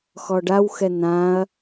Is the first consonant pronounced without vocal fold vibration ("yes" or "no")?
yes